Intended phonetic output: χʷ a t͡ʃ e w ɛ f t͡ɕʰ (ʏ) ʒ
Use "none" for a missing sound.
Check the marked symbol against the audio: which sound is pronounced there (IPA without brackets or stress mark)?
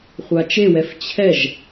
ɛ